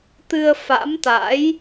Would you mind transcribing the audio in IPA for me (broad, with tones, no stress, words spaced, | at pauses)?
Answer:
t̪ɨ˧ə̯fa̰˧˥m t̪a̰˧˥j